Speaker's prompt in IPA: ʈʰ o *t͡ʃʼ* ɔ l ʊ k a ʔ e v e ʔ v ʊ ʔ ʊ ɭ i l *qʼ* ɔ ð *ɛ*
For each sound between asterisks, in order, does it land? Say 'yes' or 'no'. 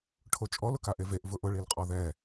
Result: yes, yes, yes

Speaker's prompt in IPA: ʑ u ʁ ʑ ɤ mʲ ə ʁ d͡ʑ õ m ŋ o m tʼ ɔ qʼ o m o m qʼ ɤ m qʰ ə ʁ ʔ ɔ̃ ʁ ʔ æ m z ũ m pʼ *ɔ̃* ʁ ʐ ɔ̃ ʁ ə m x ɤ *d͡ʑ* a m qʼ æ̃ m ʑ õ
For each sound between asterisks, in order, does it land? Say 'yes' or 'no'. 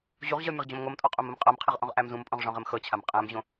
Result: yes, no

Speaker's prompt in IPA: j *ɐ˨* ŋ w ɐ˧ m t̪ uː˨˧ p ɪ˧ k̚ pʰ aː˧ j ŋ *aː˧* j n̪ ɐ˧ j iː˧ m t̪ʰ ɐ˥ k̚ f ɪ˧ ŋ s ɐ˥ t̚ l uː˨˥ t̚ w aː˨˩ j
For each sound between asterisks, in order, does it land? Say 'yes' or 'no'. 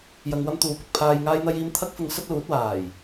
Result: yes, yes

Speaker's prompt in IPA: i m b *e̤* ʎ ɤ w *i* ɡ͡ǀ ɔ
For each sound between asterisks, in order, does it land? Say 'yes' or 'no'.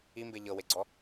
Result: no, no

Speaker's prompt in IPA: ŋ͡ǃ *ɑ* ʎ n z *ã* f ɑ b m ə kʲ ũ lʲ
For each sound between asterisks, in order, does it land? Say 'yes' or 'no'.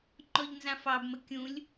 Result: no, yes

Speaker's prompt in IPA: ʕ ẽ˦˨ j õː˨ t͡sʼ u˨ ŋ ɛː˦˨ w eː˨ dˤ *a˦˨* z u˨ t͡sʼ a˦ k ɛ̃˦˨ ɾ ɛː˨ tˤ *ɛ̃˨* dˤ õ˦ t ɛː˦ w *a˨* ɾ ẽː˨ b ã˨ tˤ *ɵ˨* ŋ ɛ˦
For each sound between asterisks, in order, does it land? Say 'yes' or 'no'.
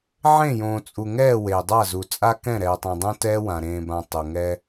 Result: yes, yes, no, no

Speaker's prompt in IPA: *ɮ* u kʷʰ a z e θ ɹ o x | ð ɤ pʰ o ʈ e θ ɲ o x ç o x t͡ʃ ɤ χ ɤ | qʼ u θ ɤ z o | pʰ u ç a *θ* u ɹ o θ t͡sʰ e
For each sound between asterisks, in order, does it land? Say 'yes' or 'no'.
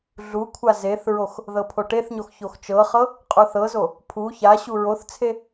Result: yes, no

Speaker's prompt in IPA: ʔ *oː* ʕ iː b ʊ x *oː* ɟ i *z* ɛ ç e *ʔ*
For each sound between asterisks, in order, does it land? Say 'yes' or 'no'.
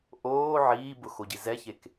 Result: yes, no, yes, no

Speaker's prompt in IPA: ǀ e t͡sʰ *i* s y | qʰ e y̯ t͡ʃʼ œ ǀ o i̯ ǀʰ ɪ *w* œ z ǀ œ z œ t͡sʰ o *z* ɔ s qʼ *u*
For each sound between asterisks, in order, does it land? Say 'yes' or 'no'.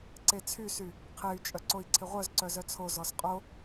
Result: no, no, yes, no

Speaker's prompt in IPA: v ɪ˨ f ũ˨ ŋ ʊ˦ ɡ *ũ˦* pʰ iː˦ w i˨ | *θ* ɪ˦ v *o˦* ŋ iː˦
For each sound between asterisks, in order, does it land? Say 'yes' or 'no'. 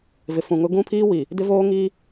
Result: yes, no, no

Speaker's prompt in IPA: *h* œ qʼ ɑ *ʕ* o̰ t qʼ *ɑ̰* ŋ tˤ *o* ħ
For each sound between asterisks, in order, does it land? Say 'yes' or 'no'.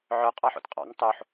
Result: no, no, yes, yes

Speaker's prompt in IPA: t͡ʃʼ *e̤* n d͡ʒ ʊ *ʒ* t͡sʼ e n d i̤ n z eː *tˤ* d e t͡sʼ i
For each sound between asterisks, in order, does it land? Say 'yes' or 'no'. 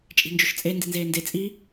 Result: no, no, no

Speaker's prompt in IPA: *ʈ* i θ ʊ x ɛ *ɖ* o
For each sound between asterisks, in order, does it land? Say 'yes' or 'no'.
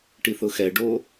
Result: yes, yes

